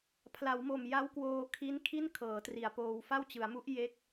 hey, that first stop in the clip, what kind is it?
aspirated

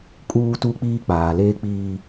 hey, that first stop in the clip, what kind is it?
ejective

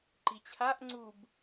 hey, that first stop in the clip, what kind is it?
click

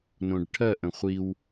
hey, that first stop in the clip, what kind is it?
plain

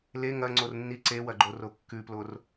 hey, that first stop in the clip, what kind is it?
click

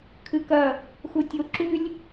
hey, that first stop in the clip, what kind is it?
aspirated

